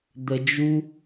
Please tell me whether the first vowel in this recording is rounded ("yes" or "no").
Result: no